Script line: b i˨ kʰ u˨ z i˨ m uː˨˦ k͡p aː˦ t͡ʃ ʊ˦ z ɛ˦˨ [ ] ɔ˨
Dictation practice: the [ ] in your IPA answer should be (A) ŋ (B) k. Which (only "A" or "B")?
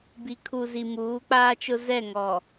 A